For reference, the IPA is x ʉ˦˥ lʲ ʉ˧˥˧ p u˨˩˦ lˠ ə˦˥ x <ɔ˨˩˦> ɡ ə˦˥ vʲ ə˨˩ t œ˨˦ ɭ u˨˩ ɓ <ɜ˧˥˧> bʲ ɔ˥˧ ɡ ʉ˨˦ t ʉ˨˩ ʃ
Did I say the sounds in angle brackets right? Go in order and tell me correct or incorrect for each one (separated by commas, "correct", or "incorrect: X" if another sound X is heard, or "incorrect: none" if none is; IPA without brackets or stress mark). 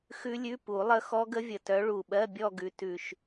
incorrect: ɔ˦˥, correct